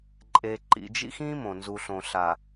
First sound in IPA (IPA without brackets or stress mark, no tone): ǃʼ